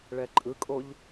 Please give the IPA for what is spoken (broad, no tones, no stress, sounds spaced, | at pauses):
ɭ ɛ ǃʼ ɯ kʼ o ʎ